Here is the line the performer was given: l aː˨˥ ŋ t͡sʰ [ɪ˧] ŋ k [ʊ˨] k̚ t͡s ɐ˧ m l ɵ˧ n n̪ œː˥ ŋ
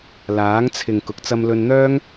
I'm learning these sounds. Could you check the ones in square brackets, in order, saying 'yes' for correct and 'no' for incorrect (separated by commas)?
no, yes